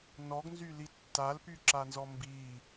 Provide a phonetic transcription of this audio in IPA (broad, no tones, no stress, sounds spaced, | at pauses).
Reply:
n ɔ ɡ n z y l i tː a l p y ǁ a n z ɔ m b i